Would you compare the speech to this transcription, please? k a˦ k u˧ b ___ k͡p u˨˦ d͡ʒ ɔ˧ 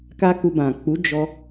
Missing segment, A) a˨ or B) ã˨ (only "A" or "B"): B